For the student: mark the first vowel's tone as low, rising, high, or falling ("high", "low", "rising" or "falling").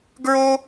high